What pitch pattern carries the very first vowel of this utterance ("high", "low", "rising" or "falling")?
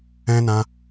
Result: high